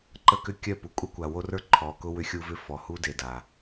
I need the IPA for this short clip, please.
ǃ ə˦ k ʏ˦ kʲ œ˦˨ p u˨ kʷʼ a˦ kʷ a˨ w o˦ r ə˞˦ ǃʰ ɔː˨ k ʊ˦ w ʏ˦ xʲ u˦ v ʏ˦ f ɔ˨ h u˦ d e˨ d a˨

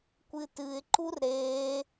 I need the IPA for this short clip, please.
kʷ ɨ t ɨ ɪ̯ ǃ u r ɾ e

